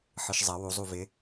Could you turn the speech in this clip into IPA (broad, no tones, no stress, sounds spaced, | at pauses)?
ħ ɯ ʃ zˤ ɐ w u zˤ u v ɪ